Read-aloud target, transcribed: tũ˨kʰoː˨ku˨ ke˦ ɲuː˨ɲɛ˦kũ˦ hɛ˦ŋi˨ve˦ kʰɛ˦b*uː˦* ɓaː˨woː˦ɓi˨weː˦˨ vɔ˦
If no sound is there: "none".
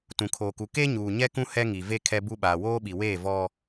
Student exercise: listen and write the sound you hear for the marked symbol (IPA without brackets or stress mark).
u˦